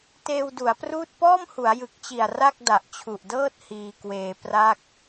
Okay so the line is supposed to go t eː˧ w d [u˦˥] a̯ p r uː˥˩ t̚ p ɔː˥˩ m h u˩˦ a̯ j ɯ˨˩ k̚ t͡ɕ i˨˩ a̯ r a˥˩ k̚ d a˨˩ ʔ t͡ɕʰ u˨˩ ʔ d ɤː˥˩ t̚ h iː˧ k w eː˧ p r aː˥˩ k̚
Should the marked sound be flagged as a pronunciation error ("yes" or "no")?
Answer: yes